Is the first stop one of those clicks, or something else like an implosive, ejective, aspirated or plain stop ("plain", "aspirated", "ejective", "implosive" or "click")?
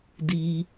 plain